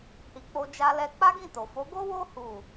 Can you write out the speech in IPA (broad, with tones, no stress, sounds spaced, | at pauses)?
h i˨ k͡p o˧ d͡ʒ a˧ l ɛ˧ k͡p a˦ ɡ ĩ˦˨ t o˨ f o˨˦ ɡ o˦ w o˦ h u˦˨